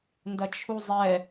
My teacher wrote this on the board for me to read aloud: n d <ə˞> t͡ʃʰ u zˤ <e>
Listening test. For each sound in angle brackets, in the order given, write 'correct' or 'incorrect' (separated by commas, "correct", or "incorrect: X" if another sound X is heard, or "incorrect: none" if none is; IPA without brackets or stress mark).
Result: incorrect: ɐ, incorrect: ɛ